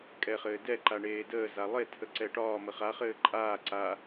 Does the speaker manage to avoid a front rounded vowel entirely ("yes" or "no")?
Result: yes